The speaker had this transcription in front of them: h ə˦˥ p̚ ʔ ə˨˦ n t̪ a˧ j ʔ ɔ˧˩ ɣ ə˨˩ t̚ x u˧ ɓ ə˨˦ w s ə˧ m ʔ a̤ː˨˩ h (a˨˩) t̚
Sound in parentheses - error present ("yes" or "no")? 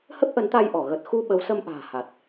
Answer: no